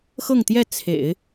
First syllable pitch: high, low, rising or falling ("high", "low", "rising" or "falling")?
falling